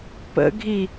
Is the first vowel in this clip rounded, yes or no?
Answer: no